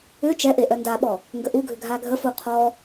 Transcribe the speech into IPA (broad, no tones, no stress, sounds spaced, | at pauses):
ʏ t͡ʃ ɛ ʔ e ʔ œ n d a ɓ ɔ | ŋ ɡ ə ʔ u ɡʱ ʏ ɡʱ a ɡʱ ə f u qʰ ɔ